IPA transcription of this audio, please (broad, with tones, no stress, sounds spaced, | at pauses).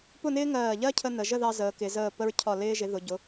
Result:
p ʊ˥˧ n ɪː˥ ŋ ɜː˧˩ ʎ ɜ˥ cʰ ə˧ n ə˩˧ ʒ ə˥˧ ð ɑ˧ z əː˩˧ k ɪ˩˧ z əː˧˩ p ə˧ ɹ cʰ ɒ˧˩ l ɪː˧ ʒ ɪ˩˧ ð ʊ˩˧ ɟ ʊ˩˧